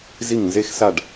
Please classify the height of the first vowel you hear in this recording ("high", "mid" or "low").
high